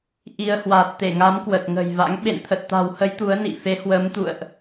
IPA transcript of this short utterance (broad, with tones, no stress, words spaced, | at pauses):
ʔi˧ə̯ hwa˨˩t̚t̪e˧˩ŋa˨˦m kwə˨˩t̚ŋə̤˨˩jva̰˧˥ŋ ɓḛ˧˨nt̪ʰə˨˩t̚t̪a̤˨˩whə˨˦j t̪u˨˦ə̯nḭ˧˨fe˨˦ hwə˨˦mt̪ṵ˧˨ə̯ʔ